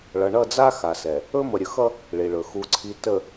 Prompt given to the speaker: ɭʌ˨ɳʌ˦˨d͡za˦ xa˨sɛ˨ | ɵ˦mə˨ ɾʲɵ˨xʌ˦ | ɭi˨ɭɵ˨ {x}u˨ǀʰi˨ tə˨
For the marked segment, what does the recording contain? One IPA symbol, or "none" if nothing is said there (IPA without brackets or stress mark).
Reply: x